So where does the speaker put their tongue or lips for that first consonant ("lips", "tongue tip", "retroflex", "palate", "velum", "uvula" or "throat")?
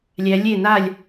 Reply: tongue tip